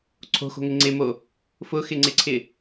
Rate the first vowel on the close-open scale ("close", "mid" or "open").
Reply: mid